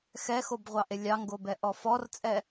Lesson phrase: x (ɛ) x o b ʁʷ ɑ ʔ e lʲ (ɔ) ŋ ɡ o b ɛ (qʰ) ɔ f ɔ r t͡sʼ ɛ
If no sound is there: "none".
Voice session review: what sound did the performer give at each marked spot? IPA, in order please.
ɛ, ɑ, ʔ

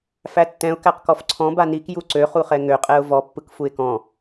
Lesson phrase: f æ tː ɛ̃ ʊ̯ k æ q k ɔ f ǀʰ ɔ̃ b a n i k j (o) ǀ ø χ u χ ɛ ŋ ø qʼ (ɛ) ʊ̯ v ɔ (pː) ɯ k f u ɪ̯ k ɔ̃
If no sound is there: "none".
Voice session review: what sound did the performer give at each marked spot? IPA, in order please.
u, ɛ, pː

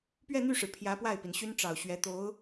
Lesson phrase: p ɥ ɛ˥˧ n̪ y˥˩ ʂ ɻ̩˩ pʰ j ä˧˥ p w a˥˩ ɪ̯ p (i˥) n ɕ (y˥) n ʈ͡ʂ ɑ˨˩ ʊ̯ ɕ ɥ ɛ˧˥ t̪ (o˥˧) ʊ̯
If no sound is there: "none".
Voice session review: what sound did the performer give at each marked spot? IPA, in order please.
i˩, y˥, o˧˥

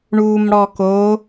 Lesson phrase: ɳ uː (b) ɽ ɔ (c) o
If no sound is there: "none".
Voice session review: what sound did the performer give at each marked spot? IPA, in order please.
m, k

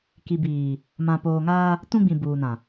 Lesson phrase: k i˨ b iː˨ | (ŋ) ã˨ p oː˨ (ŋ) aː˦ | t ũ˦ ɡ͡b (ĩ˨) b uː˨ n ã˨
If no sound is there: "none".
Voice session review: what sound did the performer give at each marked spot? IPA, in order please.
m, ŋ, ĩ˨

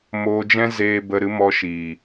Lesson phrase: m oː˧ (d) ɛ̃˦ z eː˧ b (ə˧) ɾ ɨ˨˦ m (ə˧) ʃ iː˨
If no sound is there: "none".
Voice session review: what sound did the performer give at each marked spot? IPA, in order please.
d͡ʒ, ə˧, ɔ˧

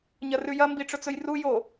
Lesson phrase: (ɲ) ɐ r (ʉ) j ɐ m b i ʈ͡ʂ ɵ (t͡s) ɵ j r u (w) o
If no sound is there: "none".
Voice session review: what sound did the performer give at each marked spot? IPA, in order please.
ɲ, ʉ, t͡s, j

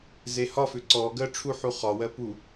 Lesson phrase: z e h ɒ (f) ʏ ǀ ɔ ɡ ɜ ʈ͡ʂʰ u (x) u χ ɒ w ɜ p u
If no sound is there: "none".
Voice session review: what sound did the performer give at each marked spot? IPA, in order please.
f, ħ

